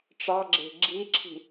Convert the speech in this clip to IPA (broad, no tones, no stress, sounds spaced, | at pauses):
ʈ͡ʂ ɑ ɡ͡ǁ e̤ ɡ͡ǁ i ǁʰ i̤